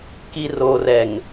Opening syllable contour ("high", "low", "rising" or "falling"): low